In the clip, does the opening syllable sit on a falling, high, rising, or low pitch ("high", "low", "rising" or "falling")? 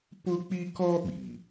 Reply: high